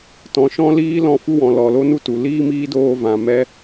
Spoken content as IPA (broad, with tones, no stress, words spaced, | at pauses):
tɔ̃˨ʃɔ̃˧liː˧ lɔ̃˧ fu˦wɔ̃˨lɔ˨ lo˦nu˦tu˨ liː˦ miː˦doː˧vã˨ mɛ˦